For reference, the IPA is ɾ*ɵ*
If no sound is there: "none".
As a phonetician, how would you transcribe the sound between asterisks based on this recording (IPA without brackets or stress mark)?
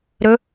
ɵ